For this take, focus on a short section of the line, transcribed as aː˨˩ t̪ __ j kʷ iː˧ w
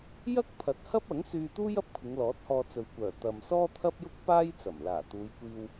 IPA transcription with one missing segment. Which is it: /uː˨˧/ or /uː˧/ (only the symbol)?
uː˨˧